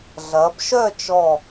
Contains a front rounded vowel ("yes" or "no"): yes